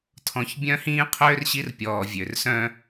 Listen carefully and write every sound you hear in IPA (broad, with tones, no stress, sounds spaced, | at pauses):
tʰ ɔ̃˨ ç bʲ œ̃˦ h ĩː˦ qʰ øː˦ r ɕ i˦ r pʲ ɔː˨ vʲ ø˨ r s œ̃˦